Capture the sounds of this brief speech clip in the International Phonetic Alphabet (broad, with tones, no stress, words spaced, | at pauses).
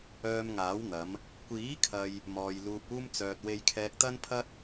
œː˧mŋaː˨˥w n̪ɐ˨˧m | kʷiː˨˥kʰɐ˨j | mɔː˨j luː˨p̚uː˧mt͡sœː˨t̚ we˧jkʰɛː˧k̚t̪ɐ˥npʰɐ˥t̚